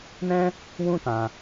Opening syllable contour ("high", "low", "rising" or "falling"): high